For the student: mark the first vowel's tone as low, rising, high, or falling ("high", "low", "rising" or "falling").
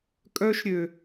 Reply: high